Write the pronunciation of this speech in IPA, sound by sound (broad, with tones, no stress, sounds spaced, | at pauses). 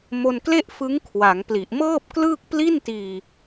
m o˧ n k l e˥˩ ʔ f ɯ˦˥ ŋ kʰ w a˩˦ ŋ p l i˨˩ ʔ m ɤː˥˩ p̚ k l ɯː˥˩ k̚ p l i˥˩ n t iː˧